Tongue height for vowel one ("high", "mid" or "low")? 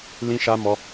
high